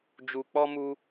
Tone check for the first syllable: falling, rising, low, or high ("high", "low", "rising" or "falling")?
low